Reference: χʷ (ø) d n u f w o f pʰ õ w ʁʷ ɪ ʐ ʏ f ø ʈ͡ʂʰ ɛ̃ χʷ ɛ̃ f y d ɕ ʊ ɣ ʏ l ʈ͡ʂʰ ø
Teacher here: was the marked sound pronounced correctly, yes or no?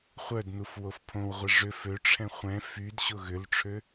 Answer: no